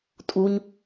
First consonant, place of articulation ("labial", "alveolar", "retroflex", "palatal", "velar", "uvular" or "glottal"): alveolar